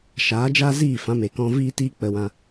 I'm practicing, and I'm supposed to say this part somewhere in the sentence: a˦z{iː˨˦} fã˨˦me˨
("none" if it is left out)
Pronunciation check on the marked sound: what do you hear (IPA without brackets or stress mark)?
iː˦˨